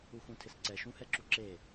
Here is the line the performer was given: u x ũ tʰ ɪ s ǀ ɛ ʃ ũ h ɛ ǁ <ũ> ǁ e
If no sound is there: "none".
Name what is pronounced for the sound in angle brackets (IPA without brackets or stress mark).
u